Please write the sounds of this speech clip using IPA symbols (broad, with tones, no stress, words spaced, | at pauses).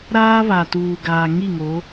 ɾaː˦βa˨ tuː˨ɡaː˨ ŋi˦˨ŋo˨˦